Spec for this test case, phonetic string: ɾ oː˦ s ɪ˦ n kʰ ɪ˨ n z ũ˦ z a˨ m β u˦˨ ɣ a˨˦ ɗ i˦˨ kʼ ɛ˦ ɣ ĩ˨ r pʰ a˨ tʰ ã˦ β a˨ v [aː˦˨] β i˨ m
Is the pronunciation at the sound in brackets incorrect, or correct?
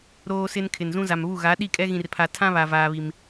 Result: incorrect